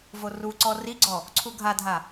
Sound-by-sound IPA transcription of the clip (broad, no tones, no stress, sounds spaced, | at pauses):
v o r u ǀ ɔ r i ɡ͡ǀ ɔ | ǀʰ u ɡʱ a dʱ a